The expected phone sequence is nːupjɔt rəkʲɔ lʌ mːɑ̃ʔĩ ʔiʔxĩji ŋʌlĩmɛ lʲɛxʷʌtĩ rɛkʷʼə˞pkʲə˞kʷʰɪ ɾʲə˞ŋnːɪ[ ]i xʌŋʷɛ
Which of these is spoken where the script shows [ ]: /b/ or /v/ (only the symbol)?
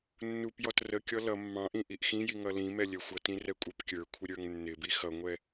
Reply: b